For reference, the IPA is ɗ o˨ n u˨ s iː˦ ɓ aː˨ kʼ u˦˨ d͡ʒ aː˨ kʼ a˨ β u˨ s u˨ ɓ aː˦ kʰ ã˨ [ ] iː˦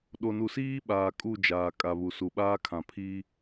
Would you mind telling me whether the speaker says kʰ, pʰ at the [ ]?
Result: pʰ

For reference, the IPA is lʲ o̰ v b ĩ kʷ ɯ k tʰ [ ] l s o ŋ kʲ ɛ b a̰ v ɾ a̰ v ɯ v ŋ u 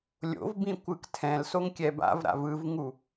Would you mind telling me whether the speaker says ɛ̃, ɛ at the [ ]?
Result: ɛ̃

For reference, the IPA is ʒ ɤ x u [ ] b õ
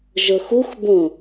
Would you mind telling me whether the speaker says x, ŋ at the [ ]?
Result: x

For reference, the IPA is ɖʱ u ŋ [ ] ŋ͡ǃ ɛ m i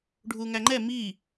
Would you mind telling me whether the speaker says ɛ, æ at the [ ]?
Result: æ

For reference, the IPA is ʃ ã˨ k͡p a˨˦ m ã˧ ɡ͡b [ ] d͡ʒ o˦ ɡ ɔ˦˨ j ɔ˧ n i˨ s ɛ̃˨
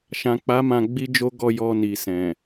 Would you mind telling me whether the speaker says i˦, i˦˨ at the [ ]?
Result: i˦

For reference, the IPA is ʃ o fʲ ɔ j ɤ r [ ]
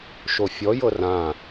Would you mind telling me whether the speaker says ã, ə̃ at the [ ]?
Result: ã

